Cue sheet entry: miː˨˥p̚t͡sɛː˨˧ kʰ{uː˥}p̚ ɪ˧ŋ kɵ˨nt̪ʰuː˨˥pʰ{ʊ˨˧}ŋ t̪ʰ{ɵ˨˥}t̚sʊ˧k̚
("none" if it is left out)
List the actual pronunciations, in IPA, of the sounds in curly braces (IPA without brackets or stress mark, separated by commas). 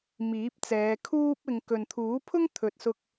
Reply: uː˥, ʊ˥, ɵ˨